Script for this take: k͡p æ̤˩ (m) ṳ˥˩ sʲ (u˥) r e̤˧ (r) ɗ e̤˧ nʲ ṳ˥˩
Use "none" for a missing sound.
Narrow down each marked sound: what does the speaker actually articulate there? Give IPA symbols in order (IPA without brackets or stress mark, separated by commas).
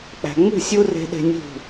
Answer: ŋ͡m, u˥, none